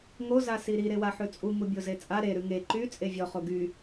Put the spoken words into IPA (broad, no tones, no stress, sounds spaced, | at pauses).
ŋ o z a s i ɾ i ɾ e w a ħ ʉ t͡sʼ u ŋ u bʲ o z e t͡sʼ a ɾ e ɾ ʉ ŋ e ǃ y t͡sʼ e vʲ ɔ χ o ɡ y